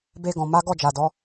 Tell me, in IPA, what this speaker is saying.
b e˧ ɡ ɔ̃˨ m a˨˦ ɡ ɔ˦˨ d͡ʒ a˨ d ɔ˨˦

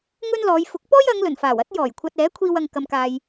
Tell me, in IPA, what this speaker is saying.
ŋ ɵ˥ n l ɔː˨˧ j f ʊ˨˥ k̚ p ɔː˥ j ɐ˨˧ ŋ l ɵ˨˩ n f aː˨˩ w ɐ˥ t̚ j ɔː˨˩ j kʷʰ ɐ˧ t̚ ɛː˨˥ kʷʰ iː˧ w ɐ˨ ŋ k ɐ˨ m k aː˨ j

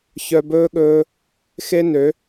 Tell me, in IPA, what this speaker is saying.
ç œ˧ b ɵː˦ ɠ ɵː˧ | x e˦ n ø˨˦

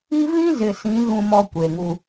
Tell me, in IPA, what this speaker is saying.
i˦ v ĩ˦ z ɪ˨ s ĩ˨˦ ɣ ũ˦ m ɔ˦ kʷ e˨ ŋ u˦

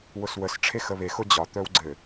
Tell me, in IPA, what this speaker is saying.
w ʊ s w ə s ʈ͡ʂʰ e x ə β e x ʊ d͡ʑ ɒ t̪ œ w ɡ͡ǀ ɘ

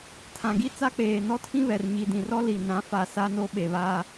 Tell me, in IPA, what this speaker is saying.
tʰ ã˨ ɡ i˦ t͡s a˦ k͡p eː˨ n ɔ˦ tʰ ĩ˦ β ɛ˨ r ɲ i˨ d ĩ˨ r ɔ˦ l i˨ n ã˨˦ f a˨ s a˦ n o˦ ɓ e˨ β aː˦

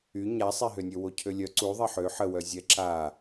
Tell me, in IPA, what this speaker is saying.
y ɲ a sˤ ɛ ɦ ø nʲ ø w o cʰ ø lʲ œ ǀ u ðˤ ɛ ħ ø ħ ə w œ zʲ ɛ ǁ a

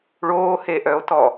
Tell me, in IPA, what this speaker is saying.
ɭ oː h e ʔ œ o̯ t ɔ

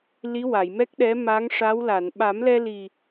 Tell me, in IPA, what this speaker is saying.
l i˧˥ w a˨˩˨ j m ɛ˦˥ k̚ ɗ ɛ˧˥ m a˧˥ ŋ ʂ a˧˥ w l a˨˩˨ n ɓ a˨˩˦ m l ɛ˧ l i˨˩

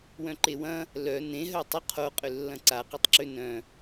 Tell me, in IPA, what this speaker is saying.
w œ̃ ǃ e w ɐ̃ | l œ n ẽ ɦ œ tˤ ʏ qʰ o qʼ ʏ lː ɐ̃ ǀ a q œ tˤ ǁ ø n œ̃

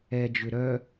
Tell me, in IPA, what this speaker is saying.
ɛ d͡ʒ ʏ ɾ œ

